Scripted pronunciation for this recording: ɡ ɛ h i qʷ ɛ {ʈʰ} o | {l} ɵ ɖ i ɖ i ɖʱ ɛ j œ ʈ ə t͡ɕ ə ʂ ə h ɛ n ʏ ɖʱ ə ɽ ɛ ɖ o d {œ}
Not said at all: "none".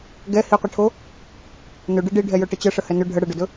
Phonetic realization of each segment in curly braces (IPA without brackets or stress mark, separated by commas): ʈʰ, n, ɵ